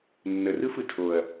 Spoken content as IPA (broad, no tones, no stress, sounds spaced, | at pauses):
nː ə r ɯ f ɯ tʰ o ɐ̯